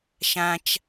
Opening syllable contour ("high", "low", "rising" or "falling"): high